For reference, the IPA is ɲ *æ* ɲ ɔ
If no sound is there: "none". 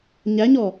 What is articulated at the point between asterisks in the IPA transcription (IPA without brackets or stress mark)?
æ